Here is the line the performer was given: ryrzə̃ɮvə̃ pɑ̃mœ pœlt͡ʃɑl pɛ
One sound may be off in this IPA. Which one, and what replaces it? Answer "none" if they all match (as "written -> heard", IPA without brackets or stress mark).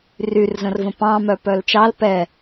ɮ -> r